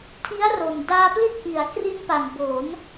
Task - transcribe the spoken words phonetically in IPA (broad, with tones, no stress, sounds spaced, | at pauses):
tʰ i˦˥ a̯ r o˨˩ n d aː˧ p l i˦˥ t̚ ʔ i˩˦ a̯ k r i˧ n p a˨˩ ŋ b o˩˦ n